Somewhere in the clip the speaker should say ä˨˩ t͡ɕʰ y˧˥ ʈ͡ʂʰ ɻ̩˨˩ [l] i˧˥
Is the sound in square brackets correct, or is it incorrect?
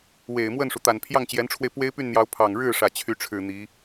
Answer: incorrect